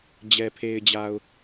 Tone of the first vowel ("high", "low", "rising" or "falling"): low